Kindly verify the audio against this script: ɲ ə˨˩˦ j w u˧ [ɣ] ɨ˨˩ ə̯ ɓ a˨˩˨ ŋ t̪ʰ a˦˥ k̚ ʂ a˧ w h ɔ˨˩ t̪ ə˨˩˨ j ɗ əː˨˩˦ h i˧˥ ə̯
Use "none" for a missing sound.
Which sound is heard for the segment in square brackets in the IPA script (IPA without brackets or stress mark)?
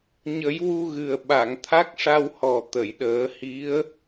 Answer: ɣ